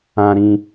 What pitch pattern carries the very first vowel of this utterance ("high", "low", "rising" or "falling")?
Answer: low